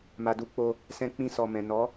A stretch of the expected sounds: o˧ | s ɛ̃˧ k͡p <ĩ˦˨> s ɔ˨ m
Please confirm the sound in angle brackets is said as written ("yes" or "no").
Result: no